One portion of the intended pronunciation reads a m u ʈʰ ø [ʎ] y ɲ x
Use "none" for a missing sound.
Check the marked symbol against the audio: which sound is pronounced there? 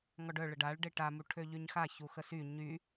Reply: ʎ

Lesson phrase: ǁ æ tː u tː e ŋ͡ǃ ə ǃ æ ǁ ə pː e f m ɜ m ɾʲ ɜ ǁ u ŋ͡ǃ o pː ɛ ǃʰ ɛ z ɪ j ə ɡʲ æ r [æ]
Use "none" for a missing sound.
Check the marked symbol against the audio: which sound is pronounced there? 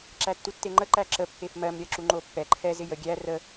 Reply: ə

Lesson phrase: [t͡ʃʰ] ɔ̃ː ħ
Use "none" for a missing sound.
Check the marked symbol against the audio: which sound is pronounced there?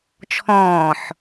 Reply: t͡ʃʰ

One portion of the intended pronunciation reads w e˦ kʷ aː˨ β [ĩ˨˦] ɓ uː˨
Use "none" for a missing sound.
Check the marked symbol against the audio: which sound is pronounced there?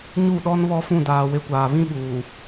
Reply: ĩ˦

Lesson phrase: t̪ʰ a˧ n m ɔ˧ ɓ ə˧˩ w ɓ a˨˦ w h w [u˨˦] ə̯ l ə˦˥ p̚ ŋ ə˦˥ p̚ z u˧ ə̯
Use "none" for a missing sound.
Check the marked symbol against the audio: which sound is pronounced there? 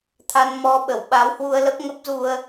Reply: u˧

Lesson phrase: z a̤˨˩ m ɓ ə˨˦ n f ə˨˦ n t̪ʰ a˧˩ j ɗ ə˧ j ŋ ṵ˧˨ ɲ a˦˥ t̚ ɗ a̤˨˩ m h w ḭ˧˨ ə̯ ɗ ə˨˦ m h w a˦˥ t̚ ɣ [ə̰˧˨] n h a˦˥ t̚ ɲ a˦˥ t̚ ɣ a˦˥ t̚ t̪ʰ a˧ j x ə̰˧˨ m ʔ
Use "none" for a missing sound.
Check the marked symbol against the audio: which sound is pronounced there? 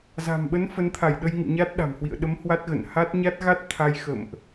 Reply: ə̰˧˨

